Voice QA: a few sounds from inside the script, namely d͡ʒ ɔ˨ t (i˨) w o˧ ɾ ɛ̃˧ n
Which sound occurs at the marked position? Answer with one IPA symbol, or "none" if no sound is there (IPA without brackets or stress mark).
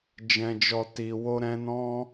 i˨